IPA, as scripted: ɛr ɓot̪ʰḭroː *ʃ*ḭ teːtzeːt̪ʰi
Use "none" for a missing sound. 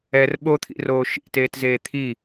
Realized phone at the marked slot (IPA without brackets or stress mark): ʃ